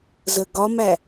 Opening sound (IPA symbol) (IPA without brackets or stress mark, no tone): z